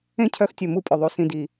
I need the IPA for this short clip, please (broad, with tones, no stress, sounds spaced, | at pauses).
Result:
ẽ˦ cʰ œ˧ x tʲ ɵ˨ m u˧ pʼ ɵ˨ ðˤ u˨ s ĩ˨ d i˨